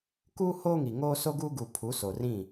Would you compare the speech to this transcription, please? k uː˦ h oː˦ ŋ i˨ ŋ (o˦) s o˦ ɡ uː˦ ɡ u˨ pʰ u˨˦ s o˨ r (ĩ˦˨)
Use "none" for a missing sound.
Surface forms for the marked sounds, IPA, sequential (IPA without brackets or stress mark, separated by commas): oː˦, ĩ˦˨